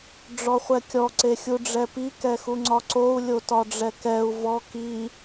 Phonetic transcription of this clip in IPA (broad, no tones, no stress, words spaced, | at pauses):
ɖ͡ʐɔχʷɛkʲɔ ǀexʲuɖ͡ʐɛpi kɛxuŋ͡ǀɒǀou̯ lʲotɒɖ͡ʐɛkɛu̯ vɔ ki